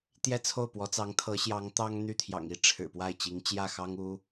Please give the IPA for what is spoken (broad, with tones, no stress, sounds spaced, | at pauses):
t̪ j ɛ˥˧ t͡sʰ o˥˩ ʊ̯ p w ɔ˧˥ t͡s ɑ˧˥ ŋ t̪ʰ ɤ˧˥ ɕ j ɑ˧˥ ŋ t̪ ɑ˥ ŋ n̪ y˥˩ t̪ʰ j ɑ̰˨˩ ŋ i˥ ʈ͡ʂʰ ɻ̩˨˩ p w a˥˩ ɪ̯ t͡ɕ i˧˥ ŋ t͡ɕ j ä˥˩ x ɑ˥ ŋ u˥